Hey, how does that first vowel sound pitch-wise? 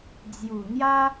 low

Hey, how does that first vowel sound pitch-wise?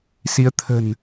rising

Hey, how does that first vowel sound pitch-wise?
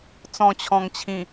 low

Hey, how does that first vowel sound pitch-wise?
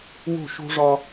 falling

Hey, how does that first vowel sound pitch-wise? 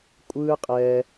high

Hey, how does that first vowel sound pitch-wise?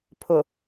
low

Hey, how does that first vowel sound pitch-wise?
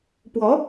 rising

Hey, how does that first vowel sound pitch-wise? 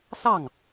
falling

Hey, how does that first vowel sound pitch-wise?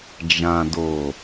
low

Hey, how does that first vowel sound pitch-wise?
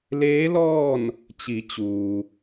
rising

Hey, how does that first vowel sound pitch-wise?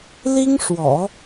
high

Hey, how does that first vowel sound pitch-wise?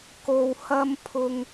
low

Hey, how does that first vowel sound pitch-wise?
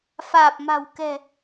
low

